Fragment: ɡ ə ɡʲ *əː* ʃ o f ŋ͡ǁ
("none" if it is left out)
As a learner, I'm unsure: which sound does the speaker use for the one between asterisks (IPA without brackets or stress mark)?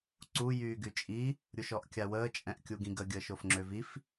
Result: əː